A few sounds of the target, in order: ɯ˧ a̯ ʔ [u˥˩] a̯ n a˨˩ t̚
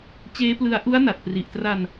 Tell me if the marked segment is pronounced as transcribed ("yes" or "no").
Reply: no